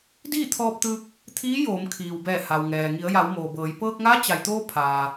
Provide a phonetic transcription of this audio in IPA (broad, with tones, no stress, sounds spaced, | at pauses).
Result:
d iː˥˨ t̪ʰ ɔː˧ p̚ t̪ ɯː˧ k̚ | t̪ʰ iː˧˥ j oː˩˧ m kʰ iː˩ w b ɛː˧˩ h a˩ w ŋ ɛː˩ ŋ i˩˧ ə̯ j a˩˧ w m oː˩ b ɤː˩˧ j p ɤː˧ k̚ ŋ a˧˥ t͡ɕ a˩ j t̪ oː˧ pʰ aː˩